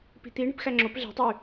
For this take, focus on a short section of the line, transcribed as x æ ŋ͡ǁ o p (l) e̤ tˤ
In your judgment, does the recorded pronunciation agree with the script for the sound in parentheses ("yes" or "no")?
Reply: no